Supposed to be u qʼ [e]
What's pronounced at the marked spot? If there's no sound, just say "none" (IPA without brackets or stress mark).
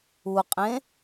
ẽ